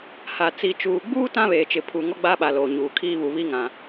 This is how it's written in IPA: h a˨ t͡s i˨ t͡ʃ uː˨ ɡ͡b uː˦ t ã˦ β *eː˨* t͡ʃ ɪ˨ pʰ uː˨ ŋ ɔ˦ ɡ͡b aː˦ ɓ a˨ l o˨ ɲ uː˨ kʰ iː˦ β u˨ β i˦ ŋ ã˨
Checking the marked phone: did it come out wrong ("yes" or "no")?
no